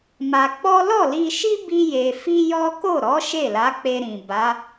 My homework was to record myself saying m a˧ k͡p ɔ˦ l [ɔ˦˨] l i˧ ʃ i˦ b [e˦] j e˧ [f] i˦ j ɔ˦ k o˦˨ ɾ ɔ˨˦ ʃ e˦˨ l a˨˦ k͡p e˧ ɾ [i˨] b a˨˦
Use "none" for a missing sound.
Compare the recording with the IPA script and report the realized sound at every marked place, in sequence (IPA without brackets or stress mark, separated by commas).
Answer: ɔ˦˨, i˦, f, ĩ˨